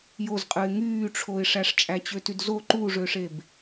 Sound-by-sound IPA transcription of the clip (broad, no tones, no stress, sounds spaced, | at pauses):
j o z qʼ ɯ ɪ̯ ŋ yː ʈ͡ʂʰ o ɪ̯ ʂ æ ʂ t͡ʃʼ æ t͡ɕ ø t y d z o ǃ u ʐ ø ʂ e b